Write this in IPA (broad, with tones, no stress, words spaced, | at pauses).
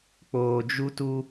k͡poː˨d͡ʒu˦tu˦